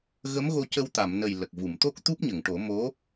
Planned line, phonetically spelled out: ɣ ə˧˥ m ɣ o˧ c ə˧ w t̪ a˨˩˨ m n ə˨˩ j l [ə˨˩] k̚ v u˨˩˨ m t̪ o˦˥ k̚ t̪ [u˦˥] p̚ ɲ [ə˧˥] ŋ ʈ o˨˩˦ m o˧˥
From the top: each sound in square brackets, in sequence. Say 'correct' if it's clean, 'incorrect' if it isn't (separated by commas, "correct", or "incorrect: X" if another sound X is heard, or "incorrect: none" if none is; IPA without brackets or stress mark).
correct, correct, incorrect: ə˨˩˨